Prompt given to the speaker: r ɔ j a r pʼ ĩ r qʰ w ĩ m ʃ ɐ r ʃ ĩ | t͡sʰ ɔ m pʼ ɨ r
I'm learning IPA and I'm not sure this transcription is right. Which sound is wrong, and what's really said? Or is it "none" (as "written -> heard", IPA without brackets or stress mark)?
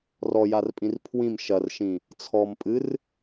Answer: qʰ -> pʰ